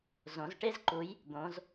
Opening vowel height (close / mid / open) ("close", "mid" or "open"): mid